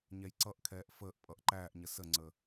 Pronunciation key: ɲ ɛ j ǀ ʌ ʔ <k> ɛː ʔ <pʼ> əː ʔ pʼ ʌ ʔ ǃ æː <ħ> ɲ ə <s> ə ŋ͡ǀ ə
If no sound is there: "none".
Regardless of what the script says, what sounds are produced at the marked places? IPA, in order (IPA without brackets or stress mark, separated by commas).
kʰ, f, ʔ, s